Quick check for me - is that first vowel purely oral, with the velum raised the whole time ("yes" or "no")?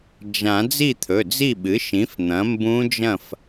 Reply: no